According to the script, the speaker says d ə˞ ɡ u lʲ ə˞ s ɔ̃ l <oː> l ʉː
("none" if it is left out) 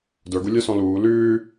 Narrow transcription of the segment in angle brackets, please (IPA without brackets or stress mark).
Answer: uː